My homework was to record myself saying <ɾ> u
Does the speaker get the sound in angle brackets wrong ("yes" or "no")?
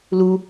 yes